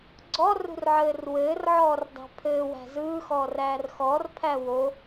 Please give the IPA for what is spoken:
ɡ͡ǀ ɔ r ṳ r ʕ ɘː r w ɘː r ʕ ɔː r dˤ æ̤ pʰ ɘː w æ̤ z ɯː x ɔː r æː r x ɔ r pʰ æ w o

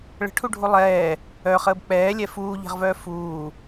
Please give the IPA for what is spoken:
ɭ ə̤ ʈʰ u ɖʱ u lˠ ɛː | œ χ əː b k͡p ɛː lʲ ɛ f uː ʎ ɛ̤ ʁ v œː f uː

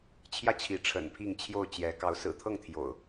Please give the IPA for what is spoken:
t͡ɕʰ j ä˦ t͡ɕʰ i˨˦ ʈ͡ʂʰ ə̰˨˩ n pʰ i˥˨ ŋ t͡ɕʰ j o˥˨ ʊ̯ t͡ɕ j ɛ˨˦ k ɑ˨˦ ʊ̯ s ɹ̩˨˩ t̪ʰ ɤ˥˨ ŋ t̪ʰ j o̰˨˩ ʊ̯

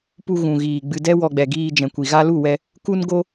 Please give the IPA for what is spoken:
p u˧ ɣ ũ˨ ɣ iː˨ ɡ͡b ɨ˧ d ɛ˦ w ɔ˧ ɡ͡b ɛ˨ ɡ iː˧ d͡ʒ ɛ̃˨ kʷ i˨ ɣ a˦ l u˦˨ w ɛ˧ | k u˦ n ɡ o˦

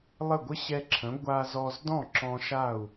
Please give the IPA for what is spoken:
lˠ ə˥˩ ɡʷ ə˥ ɕ ɛ˧ ǁʰ ə̃˩˥ ɡʷ a˧ z ɔ˧ z d ɔ̃˥˩ ǁ ɔ̃˧ ʃ a˥˩ u̯

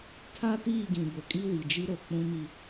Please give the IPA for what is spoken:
tʰ a˦ t iː˦˨ ɡ ĩ˨ b ʊ˨ kʼ i˦ w i˨ d͡ʒ i˦ ɾ o˨ k͡p ũ˦ m i˦

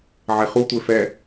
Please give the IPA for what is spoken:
ʕ e χ u tʷ e f ɛ

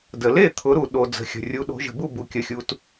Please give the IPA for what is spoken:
d ə˩ l e˥˩ t̪ʰ ʊ˩˧ ɾ u˩ ɗ o˩ d͡z ə̤˩˧ xʲ ə̤˩ rʲ u˩˧ ɗ o̤˩˧ ʒ ə̤˩ b u˥˩ b u˩ kʲ ə˩˧ xʲ u˩˧ t

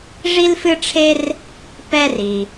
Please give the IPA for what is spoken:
ʐ i˥ l f ɨ˥ ʈ͡ʂʰ e˥ r | p ɛ˥ r i˩

